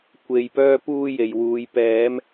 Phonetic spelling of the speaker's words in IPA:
kʷ e˨ j p œː˥ p uː˥ j e˨ j w uː˨˧ j p ɛː˨˧ m

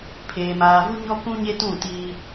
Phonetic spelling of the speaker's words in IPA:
pʰ eː˨ m aː˨ v u˦ ɲ ɔ˦ k ũ˦ ɲ e˦ t ũ˦˨ t iː˦

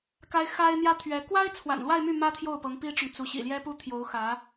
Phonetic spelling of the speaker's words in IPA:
k a˥ ɪ̯ x a˥ ɪ̯ n̪ j ä˥ t̪ʰ ɥ ɛ˧˥ k w a˥ ɪ̯ t͡sʰ w a̰˨˩ n l w a˥˧ ɪ̯ m y˥˩ m ä˥ t̪ʰ j o˥˩ ʊ̯ p ɤ˧˥ ŋ p i˥ ʈ͡ʂ ʊ˨ ŋ t͡s u˧˥ ɕ ḭ˨˩ l j ɛ˥ p u˥ t̪ʰ j o˧˥ ʊ̯ x ä˧˥

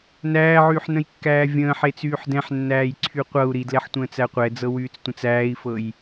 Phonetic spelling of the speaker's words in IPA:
n æː ʕ yː ħ n ə̃ j kː æː vʲ ə̃ː ħ e t͡s yː ħ d ɛ̃ ħ nː æː j ǀʰ y qʷ ɤ u̯ ɾ i d l ɛ ħ tʷ ə̃ː t͡s æ qʷ ɛ d͡z ɤ w yː t͡s tʷ ə̃ t͡s æː i̯ f ɤ j

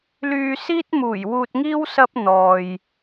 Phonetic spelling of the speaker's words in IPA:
l yː˨ s iː˥ t̚ m uː˨˩ j w uː˧ t̚ ŋ iː˥ w s ɐ˥ p̚ n̪ ɔː˨ j

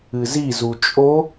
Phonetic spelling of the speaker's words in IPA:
ɨ z i z u t͡ʃʼ o

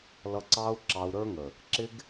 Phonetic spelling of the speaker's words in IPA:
l ʌ˧ ǀ ɑ˦ u̯ ǁ ɑ˧ u̯ ɾ ə˞˦ ŋ ə˨ | ǁ ɪ˦ ɡ

